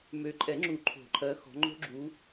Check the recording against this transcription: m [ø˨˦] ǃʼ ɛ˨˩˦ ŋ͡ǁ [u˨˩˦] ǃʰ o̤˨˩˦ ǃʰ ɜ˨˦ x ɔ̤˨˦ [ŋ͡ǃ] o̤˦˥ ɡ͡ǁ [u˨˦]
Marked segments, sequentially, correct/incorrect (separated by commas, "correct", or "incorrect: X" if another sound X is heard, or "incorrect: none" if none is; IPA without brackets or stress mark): correct, correct, correct, correct